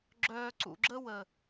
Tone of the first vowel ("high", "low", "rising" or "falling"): low